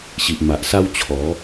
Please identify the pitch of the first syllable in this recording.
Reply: low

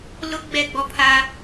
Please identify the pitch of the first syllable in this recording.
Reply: high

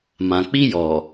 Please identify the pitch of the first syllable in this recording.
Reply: low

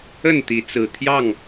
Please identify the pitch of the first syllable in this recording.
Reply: falling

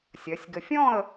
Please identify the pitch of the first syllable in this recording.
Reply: rising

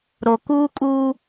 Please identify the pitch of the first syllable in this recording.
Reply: low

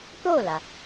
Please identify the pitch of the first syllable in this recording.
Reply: falling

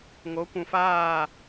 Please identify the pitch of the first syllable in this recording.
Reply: rising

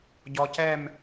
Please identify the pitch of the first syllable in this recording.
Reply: low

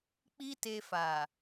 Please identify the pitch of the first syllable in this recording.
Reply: high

